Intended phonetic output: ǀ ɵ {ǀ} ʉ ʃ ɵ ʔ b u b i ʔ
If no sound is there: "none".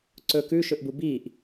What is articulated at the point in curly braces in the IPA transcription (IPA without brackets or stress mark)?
k